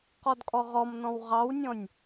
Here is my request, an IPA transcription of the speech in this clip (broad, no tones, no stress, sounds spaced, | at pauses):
q ɔ d kʼ ɔ ʁ ɔ m n ɔ̃ w ʁ ɑ w nʲ ɔ̃ nʲ